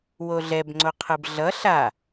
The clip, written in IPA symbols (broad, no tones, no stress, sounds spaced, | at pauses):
w o ɮ ɛ b ŋ͡ǀ o qʰ ɯ b ɮ ʌ ɬ a